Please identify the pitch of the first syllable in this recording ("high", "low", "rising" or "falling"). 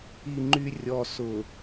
low